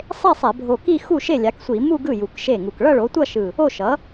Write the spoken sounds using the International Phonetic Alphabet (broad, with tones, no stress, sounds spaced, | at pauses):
sˤ e˥˧ sˤ ɛ˧˩˧ bʱ o˧˩ k i˥˧ x u˥˩ ʃ e˥˩ lʲ a˩˥ k sʷ i˧˩˧ m u˥˧ ɡ ɯ˥˩ j u˧˩ k ʃ e˥˩ ŋ u˧˩ k ɭ ʌ˥˧ ɭ o˩˥ tʷ ʌ˥˧ ʃ ɯ˧˩ | o˥˩ ʃ ʌ˩˥